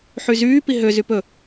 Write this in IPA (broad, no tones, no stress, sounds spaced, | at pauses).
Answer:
ħ y z yː p i ɦ ø z y p ɵ